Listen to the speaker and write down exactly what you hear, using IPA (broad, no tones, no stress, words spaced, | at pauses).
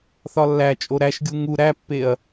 θɒlːæt͡ʃʼo ɾæʃɡʲu ŋu ɾæpːeɐ̯